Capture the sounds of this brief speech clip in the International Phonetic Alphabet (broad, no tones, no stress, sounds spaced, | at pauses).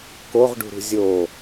k o ʁ ɖ ṳ ɾ ṳ zʲ o